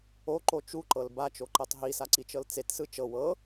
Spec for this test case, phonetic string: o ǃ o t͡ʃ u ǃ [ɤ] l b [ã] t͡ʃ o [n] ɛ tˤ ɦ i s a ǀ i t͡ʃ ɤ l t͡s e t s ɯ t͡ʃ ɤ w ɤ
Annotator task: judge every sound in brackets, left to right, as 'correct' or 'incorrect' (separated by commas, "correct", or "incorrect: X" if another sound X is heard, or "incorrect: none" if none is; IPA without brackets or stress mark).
correct, incorrect: a, incorrect: ǃ